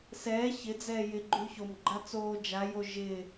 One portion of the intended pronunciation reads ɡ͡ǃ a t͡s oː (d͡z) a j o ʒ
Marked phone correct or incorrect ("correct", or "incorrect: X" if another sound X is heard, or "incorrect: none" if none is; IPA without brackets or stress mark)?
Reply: incorrect: d͡ʒ